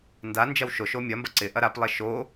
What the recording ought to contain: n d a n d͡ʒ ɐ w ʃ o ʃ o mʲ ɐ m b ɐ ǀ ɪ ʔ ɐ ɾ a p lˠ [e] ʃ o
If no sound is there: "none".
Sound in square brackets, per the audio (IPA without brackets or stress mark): e